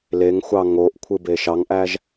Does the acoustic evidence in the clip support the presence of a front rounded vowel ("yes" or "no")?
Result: no